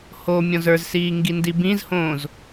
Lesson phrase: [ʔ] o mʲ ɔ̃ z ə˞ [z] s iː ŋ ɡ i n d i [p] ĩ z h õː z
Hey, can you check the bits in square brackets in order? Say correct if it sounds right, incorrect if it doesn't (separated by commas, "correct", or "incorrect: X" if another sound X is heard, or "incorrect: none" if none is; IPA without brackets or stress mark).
incorrect: h, correct, incorrect: b